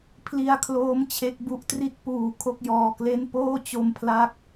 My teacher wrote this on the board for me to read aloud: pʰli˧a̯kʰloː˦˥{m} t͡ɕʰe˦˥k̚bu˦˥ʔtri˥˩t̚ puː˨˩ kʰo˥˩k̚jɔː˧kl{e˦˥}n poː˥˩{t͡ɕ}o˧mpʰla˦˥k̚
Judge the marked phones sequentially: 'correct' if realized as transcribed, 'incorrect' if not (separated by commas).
correct, incorrect, correct